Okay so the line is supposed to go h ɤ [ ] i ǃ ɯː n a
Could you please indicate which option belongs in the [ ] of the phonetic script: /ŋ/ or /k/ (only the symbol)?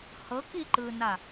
k